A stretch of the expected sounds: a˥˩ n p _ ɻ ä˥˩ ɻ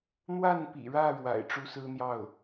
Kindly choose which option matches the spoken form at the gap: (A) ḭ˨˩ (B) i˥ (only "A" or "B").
A